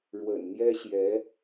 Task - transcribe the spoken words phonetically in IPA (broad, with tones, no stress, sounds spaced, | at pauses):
ɻ w ə̰˨˩ n n̪ j ɛ˥ ɕ j ɛ˧˥